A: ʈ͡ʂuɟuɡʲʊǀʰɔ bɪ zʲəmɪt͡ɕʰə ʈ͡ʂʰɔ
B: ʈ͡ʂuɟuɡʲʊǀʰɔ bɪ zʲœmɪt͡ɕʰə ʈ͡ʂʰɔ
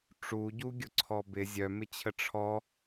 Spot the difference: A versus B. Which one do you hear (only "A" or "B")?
B